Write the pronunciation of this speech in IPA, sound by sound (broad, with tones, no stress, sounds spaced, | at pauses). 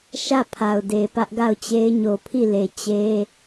ʃ ä˦˨ pʰ a˨ ʊ̯ d e˨ p ä˦ ʔ ɡ a˦˨ ʊ̯ t͡ɕ e˦ ɪ̯ ɲ o˨ pʰ i˦˨ l e˨ t͡ɕ e˦